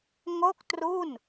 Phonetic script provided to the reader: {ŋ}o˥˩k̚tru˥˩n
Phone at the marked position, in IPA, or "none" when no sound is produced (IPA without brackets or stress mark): ŋ